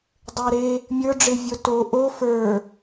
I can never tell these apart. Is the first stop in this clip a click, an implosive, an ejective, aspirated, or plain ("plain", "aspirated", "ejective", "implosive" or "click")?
plain